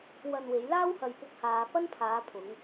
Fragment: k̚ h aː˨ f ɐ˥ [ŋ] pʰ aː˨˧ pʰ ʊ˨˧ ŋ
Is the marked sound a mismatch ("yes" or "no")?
yes